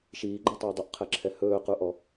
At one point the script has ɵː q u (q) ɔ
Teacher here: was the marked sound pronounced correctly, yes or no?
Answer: no